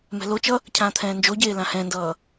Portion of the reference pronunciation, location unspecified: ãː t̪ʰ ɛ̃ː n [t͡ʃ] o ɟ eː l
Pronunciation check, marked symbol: incorrect: d͡ʒ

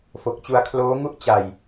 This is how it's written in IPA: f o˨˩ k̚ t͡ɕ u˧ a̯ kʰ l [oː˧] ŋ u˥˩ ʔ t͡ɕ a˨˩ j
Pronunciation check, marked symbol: incorrect: oː˦˥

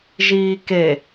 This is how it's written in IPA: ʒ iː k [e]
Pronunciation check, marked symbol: correct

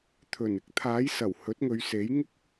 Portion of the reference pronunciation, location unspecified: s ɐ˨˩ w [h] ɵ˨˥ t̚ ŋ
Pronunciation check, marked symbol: correct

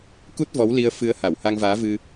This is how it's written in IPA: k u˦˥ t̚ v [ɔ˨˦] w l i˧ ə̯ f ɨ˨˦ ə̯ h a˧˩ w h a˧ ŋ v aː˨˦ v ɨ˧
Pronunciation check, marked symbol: correct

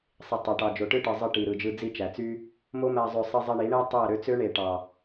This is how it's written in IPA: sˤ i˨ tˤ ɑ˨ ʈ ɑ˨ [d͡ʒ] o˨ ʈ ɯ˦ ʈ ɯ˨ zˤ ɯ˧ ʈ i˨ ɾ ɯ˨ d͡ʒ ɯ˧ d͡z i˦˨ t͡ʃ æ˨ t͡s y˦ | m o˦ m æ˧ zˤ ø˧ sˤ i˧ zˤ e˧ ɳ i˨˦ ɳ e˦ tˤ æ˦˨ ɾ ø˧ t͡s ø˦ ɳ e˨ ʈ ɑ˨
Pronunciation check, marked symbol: correct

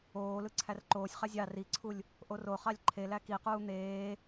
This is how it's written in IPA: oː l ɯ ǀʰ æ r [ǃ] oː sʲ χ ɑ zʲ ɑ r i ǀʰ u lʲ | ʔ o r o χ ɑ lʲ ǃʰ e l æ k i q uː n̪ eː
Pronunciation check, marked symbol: correct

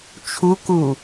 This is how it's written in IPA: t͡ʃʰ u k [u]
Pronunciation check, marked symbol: correct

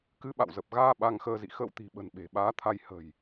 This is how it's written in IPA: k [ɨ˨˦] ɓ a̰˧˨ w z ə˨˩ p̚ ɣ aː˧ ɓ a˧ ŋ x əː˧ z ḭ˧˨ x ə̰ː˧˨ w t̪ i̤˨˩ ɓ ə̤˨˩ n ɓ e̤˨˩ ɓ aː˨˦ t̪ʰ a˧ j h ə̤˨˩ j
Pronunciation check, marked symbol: correct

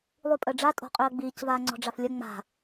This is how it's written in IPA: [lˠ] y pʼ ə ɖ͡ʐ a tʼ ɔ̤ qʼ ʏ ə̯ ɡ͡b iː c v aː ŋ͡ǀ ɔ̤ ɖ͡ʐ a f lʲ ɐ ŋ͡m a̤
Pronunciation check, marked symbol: correct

